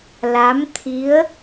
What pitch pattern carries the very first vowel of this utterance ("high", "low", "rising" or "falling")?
rising